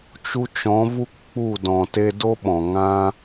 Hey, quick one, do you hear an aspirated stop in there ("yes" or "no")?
no